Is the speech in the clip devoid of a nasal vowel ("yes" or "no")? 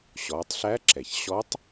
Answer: yes